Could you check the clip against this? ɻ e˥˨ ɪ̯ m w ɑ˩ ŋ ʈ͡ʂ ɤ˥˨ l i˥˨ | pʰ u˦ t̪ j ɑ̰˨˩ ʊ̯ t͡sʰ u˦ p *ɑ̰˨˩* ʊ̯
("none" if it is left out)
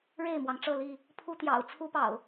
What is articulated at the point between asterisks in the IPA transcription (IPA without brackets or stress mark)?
ɑ̰˨˩